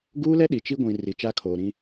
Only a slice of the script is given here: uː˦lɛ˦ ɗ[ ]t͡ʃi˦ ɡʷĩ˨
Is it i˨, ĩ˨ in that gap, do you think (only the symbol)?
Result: i˨